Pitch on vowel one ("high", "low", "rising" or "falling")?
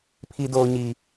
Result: low